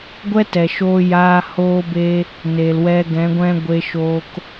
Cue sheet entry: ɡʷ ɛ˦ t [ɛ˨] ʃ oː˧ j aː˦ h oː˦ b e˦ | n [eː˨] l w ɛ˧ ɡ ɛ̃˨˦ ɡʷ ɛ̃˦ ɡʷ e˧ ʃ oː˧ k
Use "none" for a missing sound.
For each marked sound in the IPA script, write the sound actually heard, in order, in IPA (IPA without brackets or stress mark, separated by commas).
ɛ˨, eː˨